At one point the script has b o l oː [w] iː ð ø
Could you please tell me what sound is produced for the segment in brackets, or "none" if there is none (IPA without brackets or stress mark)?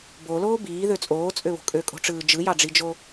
b